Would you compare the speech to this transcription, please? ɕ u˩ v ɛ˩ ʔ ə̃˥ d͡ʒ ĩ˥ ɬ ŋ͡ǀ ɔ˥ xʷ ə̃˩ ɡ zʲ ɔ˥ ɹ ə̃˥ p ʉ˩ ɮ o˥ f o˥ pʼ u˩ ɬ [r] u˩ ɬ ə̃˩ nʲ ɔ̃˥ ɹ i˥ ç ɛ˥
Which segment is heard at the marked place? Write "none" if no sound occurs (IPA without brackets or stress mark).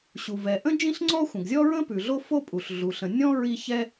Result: ɮ